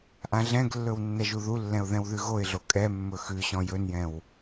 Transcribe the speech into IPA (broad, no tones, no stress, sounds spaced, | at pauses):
ʔ ã ɮ ɛ̃ ɡ lː ɵ w nː ɛ ʒ u ð u lː ɛ̃ ʊ̯ ð ɛ̃ w ð ʉ ɣ o ɪ̯ ɮ o kʼ ɛ mː ɵ x ʉ ɕ ɔ̃ j ɵ n j ɛ̃ w